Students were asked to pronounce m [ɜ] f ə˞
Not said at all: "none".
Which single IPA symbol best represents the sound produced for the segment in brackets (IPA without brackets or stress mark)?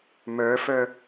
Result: ə˞